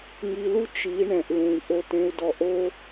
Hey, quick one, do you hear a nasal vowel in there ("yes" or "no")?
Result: yes